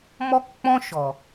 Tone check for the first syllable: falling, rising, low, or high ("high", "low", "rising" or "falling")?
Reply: high